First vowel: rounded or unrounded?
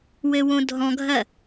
unrounded